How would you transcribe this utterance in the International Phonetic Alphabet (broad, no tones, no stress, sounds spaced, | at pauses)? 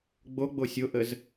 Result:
ɡ͡b o ɡ͡b o sʲ o ʔ ə z